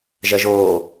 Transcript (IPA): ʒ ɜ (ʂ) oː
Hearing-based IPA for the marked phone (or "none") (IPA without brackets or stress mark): ʒ